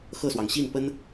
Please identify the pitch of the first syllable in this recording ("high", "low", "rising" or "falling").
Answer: falling